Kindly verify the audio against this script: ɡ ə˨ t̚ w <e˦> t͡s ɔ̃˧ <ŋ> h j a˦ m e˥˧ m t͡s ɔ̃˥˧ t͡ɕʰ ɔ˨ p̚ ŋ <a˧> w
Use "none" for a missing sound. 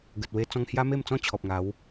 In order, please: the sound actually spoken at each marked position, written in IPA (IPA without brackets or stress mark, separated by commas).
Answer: e˧, ŋ, a˨˦